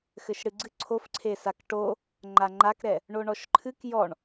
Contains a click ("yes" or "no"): yes